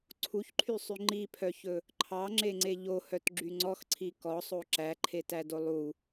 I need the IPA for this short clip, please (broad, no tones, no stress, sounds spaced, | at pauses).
ǀʰ u ç ǃʰ y sˤ y ŋ͡ǃ i pʰ œ ç ɵ | ǃʰ ɑ ŋ͡ǁ e ŋ͡ǀ e ʎ o h œ t ɡ͡ǁ y ŋ͡ǀ ɔ x ǀʰ i k ɔ sˤ o ǁ æ ǃʰ e t æ d o lˠ u